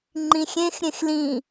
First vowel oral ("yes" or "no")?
no